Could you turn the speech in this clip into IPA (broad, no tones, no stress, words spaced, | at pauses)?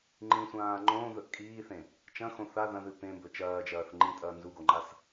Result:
ŋ͡ǃĩsʷãː ŋ͡ǃõːðɵʔ kʼiːθẽ | t͡ʃɐ̃xõ θa ðɐ̃ðɨ pẽmbɵ t͡ʃɐːd͡ʒɐːθ ŋ͡ǃĩtʼɐː nzuɡoŋ͡ǃas